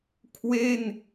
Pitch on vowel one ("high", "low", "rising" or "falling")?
falling